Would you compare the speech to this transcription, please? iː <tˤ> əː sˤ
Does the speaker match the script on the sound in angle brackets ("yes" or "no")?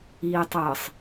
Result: yes